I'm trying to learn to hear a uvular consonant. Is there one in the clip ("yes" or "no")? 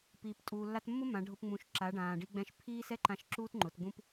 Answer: no